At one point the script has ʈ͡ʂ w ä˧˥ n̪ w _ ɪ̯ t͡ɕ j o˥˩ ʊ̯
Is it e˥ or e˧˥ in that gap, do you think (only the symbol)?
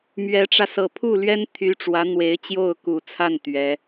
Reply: e˧˥